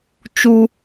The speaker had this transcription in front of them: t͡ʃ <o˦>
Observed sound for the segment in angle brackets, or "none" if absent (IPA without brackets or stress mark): u˦